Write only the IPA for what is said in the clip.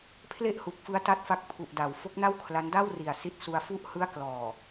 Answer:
pʰ l e˥˩ ʔ h u˨˩ k̚ f ɯ˦˥ a̯ t a˦˥ t̚ f a˦˥ k̚ pʰ u˨˩ ʔ d a˩˦ w f o˦˥ k̚ n a˥˩ w kʰ l a˦˥ n d a˥˩ w r i˨˩ a̯ s i˦˥ t̚ s u˧ a̯ f u˦˥ ʔ h ɯ˦˥ a̯ k l ɔː˨˩

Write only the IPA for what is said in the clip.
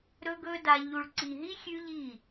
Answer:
ɾ ɵ˧ ɡ ɵ˧ d a˧ ʎ u˨ ɭ ǀ i˨ ɦ i˦ xʲ ʉ˦ ʎ i˦˨

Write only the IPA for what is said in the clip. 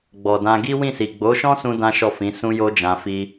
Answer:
ɡ͡b ɔ˨ d ã˧ ɡ i˦ w ĩ˦˨ s i˨ ɡ͡b o˨˦ ʃ ɔ̃˦ s ũ˧ d ã˦ ʃ ɔ˦˨ f ĩ˨˦ s ũ˧ j o˧ d͡ʒ ã˧ f i˦

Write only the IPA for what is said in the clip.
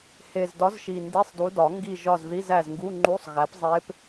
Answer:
h e˨˩ z d ɒ˨˥ z ʃ i˨˩ n d i˧˥˧ sˤ d u˨˥ d ɒ˨˩˦ ŋ ɡ i˦˨ ʒ ɒ˦˨ z ð i˧˥˧ z æ˦˨ z ŋ ɡ u˧˥˧ ŋ͡ǃ u˧˥˧ sˤ ɣ æ˨˥ p zˤ e˦˥ p

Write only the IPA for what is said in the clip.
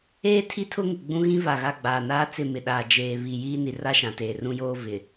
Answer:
eː˦ tʰ i˦ tʰ ʊ˦ ŋ ɪ˨ ɡ͡b ũ˦ ɣ ĩ˦ v a˨ ɣ a˦˨ ɡ͡b aː˨ n aː˦ t͡s ɪ˦˨ m ɪ˨ ɗ aː˨ d͡ʒ eː˨ β i˨ j iː˦ n i˨ r a˦ ʃ ã˨ t eː˨ r ũ˦ j oː˦ v ɪ˨

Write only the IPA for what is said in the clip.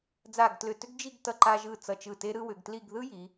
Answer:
d͡z a˧˩ ɡ t l ʏ˧˩ t ʏ˥ ɡ d͡ʒ i˥˧ ɡ t ʌ˧ ǃ a˧ ʒ ɯ˧˩ t͡s ʌ˧˩ t͡ʃ ɯ˧˩ t e˧ ɾ ɯ˧ w ʏ˩˧ ɡ t l i˥˧ ɡ ð ɯ˥ j i˩˧

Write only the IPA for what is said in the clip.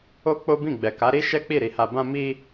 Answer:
o˦ k͡p o˦ b ĩ˦˨ ɡ͡b ɛ˨ k a˨˦ ɾ i˦ ʃ ɛ˦ k͡p i˦˨ ɾ i˧ h a˧ b ã˧ m i˧

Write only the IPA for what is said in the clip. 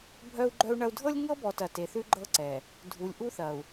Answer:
bʱ œ˦ u̯ ɡ͡ǃ œ˦ u̯ ɳ ɐ˦ u̯ dʱ ɤ˦ lʲ ŋ ɤ˦ b ɔ˨ t ɐ˨ t e˨ θ ʉ˦ ɡ͡ǃ ɤ˦ ǀ ɛ˨ | dʱ u˨ lʲ ʔ u˦ θ ɐ˨ u̯

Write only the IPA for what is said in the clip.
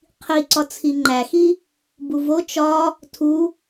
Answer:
qʰ i ǀ ɒ t͡sʰ i ŋ͡ǃ æ x i | b u v o t͡ʃ ɒ | tʰ u

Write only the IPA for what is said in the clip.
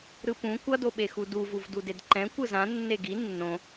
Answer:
ɾ ɯ p ũ kʷ ʌ d o ɓ e x u d u v u v d u d e d ǃ ɛ̃ kʷ ɯ z ã nː e ɡ i nː õ

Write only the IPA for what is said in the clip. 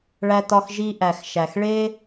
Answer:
ɭ æ˧ t ɒ˧ x ʒ i˦ ʔ æ˨ x ʃ æ˨ x ɭ e˦

